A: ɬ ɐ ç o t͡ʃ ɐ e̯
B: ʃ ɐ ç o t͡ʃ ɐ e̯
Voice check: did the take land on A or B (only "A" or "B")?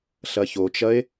A